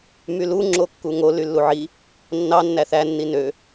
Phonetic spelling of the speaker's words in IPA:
m y l u ŋ͡ǁ o kː u ŋ o l y lː u ʕ i | nː ɑ nː æ θ æ nː i n ø

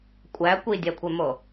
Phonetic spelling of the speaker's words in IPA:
kʷʼ æ kʷ i dʲ æ kʷʰ e m o

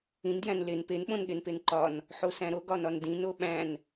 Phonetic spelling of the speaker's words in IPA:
ĩ n d j æ̃ n l e n p e n ɓ õ n ɠ e n p e n ǃ ɒ n | ħ o s æ̃ ɾ o ɡ ɒ n ɒ n d ĩ n o ɓ æ̃ n

